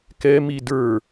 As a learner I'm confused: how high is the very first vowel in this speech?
mid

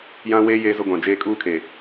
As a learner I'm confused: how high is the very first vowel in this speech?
low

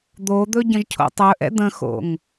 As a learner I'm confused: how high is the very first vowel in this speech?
mid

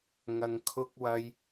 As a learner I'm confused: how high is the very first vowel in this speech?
low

